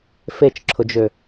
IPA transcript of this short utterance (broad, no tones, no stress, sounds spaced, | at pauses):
f e t͡ʃ ǁʰ ʊ d͡ʒ ø